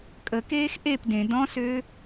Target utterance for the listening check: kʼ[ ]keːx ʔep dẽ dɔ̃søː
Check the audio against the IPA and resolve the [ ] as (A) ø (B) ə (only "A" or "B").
B